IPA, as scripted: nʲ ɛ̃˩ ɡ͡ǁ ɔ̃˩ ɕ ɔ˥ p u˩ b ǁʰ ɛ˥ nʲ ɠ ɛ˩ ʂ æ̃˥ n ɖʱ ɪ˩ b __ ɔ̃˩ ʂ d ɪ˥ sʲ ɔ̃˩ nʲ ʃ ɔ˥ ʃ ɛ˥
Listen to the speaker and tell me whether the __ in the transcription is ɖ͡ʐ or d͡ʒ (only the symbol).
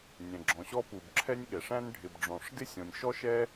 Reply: ɖ͡ʐ